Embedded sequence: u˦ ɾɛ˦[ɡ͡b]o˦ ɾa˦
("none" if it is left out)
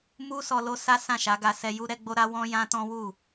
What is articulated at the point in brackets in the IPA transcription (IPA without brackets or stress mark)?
ɡ͡b